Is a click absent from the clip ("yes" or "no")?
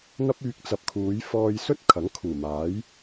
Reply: yes